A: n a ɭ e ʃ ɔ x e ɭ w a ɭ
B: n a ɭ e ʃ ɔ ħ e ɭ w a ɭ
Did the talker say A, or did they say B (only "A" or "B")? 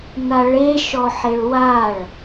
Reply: B